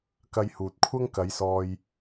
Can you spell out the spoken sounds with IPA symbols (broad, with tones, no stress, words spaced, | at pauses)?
kɐ˧jhuː˨t̚kʷʰɐ˥ŋ kɐ˨˧jsɔː˧j